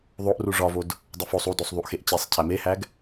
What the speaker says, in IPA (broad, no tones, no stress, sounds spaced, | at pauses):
ðˤ o ʔ r u ʐ ɒ v o d | dˤ e f o sˤ u d o sˤ ðˤ u ʔ x e ʔ t͡ɕ e sˤ cʰ æ m e h æ ɡ